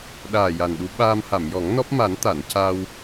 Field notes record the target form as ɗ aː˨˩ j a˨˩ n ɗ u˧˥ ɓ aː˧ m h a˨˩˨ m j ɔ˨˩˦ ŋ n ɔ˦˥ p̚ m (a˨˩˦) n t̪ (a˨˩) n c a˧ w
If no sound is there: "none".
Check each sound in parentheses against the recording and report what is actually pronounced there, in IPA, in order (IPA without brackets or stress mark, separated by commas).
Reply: a˨˩˦, a˨˩˨